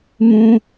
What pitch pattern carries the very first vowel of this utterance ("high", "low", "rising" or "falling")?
high